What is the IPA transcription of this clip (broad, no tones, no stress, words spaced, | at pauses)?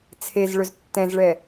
t͡sʰezɭɵz tːɛ̃zɭɛ